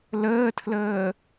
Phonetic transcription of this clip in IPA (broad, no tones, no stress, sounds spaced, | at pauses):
l əː tʰ l əː